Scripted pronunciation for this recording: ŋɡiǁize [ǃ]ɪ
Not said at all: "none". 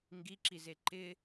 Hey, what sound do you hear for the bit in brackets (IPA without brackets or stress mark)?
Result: ǃ